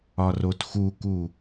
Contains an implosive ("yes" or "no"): no